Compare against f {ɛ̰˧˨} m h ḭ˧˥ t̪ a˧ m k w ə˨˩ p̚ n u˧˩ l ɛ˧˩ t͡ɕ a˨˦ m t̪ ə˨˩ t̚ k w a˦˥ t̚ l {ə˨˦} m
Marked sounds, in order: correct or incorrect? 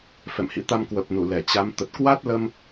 correct, incorrect: ə˧

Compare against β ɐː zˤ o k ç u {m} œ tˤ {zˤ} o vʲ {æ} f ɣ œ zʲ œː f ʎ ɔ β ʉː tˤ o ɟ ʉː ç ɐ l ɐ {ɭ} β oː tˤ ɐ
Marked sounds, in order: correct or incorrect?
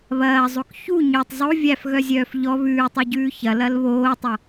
incorrect: ɲ, correct, correct, incorrect: l

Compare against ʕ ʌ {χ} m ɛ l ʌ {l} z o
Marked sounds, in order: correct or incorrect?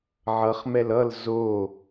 correct, correct

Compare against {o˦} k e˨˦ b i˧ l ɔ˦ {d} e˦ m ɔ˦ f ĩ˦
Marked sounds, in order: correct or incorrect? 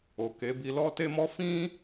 incorrect: o˨, incorrect: t

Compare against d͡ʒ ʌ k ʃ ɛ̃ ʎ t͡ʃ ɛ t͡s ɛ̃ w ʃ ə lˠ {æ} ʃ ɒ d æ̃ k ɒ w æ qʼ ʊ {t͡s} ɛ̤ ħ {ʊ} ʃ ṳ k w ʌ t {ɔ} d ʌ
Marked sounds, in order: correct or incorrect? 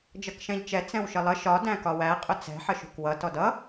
incorrect: ə, correct, incorrect: ə, correct

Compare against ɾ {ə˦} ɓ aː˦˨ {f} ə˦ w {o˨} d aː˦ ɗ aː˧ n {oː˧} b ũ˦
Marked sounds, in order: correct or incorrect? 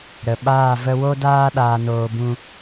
incorrect: ə˨, incorrect: v, incorrect: o˦, correct

